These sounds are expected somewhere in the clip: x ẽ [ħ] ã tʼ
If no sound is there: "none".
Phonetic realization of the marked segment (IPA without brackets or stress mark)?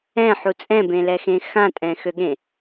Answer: x